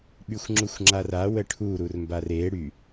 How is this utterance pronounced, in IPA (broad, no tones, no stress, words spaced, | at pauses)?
ɓyxʷŋ͡ǁuxʷŋ͡ǁara wəʈʰu ɾurmbare ɽy